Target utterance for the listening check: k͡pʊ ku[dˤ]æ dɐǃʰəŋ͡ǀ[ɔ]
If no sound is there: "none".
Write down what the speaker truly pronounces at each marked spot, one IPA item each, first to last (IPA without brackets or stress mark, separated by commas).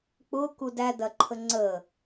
d, ə